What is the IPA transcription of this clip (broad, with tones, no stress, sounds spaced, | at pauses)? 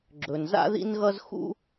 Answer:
ɡ͡ǁ ɵ˩ n z a̰˥ ð ḭ˥ n ɣ ʌ˥ z x ṵ˥